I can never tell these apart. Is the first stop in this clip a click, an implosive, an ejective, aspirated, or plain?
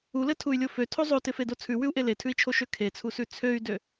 aspirated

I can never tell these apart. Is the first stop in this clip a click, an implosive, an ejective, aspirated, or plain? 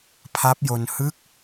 aspirated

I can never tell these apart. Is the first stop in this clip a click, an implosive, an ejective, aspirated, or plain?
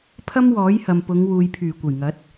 aspirated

